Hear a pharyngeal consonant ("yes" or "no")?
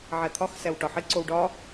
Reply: yes